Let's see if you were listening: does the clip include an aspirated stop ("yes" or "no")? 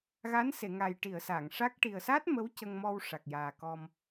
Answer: no